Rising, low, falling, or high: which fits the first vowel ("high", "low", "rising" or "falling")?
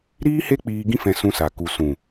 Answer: high